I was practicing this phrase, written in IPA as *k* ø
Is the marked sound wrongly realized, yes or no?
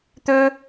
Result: yes